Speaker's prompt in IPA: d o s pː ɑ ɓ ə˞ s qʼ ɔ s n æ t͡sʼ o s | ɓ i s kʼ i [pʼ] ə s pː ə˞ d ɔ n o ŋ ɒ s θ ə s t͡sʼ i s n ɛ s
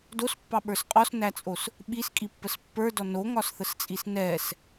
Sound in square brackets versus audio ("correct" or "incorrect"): incorrect